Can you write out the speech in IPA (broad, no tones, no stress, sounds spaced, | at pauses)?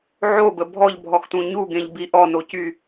ʕ o b ə bʱ ɔ ʎ bʱ ɔ x t ũ ɲ u ɡ ẽ ʎ b i ʔ ɔ n o c y